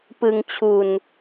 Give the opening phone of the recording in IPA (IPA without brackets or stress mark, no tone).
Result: p